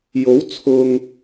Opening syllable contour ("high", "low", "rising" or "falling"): rising